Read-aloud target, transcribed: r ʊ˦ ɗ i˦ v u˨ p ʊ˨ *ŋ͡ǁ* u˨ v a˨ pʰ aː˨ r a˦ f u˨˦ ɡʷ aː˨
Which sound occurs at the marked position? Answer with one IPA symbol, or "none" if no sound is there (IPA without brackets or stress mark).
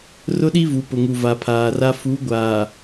ŋ